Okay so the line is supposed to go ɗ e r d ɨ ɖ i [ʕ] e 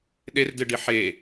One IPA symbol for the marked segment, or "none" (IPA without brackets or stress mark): ħ